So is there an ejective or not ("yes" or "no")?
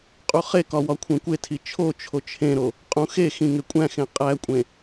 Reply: yes